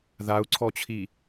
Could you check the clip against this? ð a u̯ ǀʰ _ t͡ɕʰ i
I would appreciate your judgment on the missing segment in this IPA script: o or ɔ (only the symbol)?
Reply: ɔ